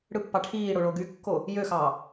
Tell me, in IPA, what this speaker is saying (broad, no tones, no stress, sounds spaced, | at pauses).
ɽ ɯ pː ɑ ʈʰ iː ɽ o ɭ o ɡ y kː o | j ø x ɑ